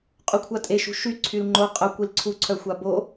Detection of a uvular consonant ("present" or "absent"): present